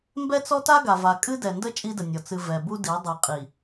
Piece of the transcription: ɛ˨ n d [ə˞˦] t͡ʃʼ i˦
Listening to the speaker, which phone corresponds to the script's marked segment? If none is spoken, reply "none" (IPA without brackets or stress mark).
ə˦